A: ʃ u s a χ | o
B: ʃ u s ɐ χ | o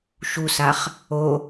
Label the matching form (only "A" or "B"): A